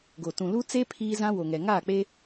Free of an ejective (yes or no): yes